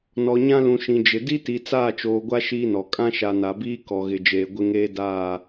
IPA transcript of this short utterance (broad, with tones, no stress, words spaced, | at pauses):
nɔ˨ɲã˦ lũ˨ʃĩ˨ d͡ʒɪ˨ di˦ti˨ t͡saː˦˨t͡ʃoː˨ɡʷa˦ ʃiː˦nɔ˨ kʼã˦ʃa˨na˨biː˦ kɔ˨ɣɪ˨d͡ʒeː˨ ɡʷɪ˦ŋeː˦daː˦˨